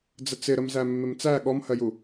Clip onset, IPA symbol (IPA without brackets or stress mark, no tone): d͡z